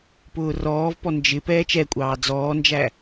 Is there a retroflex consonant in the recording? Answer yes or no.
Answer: no